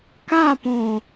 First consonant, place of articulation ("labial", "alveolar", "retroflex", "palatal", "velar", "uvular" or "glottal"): velar